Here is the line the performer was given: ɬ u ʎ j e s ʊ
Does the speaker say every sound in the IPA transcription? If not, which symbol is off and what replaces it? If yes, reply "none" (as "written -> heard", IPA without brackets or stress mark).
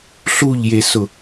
none